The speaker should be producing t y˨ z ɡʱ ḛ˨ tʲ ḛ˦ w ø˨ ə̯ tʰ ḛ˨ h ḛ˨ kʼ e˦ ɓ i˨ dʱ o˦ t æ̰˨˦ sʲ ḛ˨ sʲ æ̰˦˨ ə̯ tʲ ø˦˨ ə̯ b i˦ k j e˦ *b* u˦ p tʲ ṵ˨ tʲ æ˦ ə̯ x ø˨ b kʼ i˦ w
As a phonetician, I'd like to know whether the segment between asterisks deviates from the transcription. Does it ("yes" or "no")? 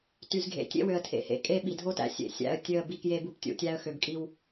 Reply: no